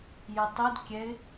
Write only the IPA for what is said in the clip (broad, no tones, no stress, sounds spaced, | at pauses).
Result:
j ɪ tˤ i d kʲ ɛ ɪ̯